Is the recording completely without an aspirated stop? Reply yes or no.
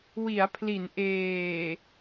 no